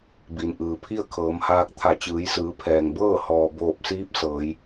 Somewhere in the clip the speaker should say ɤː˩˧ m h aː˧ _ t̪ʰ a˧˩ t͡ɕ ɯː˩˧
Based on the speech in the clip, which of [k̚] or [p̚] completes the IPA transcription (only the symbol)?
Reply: k̚